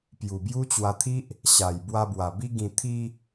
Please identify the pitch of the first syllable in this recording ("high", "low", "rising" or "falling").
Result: low